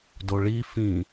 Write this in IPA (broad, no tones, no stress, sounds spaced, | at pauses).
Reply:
d o ɭ i f ĩ